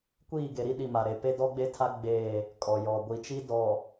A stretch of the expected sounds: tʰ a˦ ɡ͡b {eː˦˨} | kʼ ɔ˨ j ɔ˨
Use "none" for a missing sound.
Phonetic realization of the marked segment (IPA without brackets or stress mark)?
eː˦˨